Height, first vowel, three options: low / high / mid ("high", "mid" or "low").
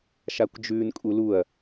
low